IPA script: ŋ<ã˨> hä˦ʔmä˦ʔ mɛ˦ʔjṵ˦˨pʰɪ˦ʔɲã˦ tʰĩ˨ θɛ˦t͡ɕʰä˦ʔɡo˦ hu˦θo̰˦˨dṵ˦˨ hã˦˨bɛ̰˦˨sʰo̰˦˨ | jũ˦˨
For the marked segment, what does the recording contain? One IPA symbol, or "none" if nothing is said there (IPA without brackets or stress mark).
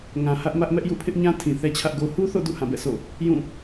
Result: ã˨